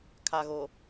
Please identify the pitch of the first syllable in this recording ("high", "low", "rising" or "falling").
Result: low